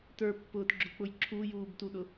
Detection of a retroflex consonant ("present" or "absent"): absent